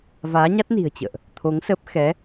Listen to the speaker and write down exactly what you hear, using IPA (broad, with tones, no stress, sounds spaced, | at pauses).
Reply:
v aː˨˦ ɲ a˦˥ t̚ n i̤˨˩ ə̯ t͡ɕ ə̰ː˧˨ ʔ | t̪ʰ o˨˦ ŋ s ə˦˥ p̚ x ɛ˨˦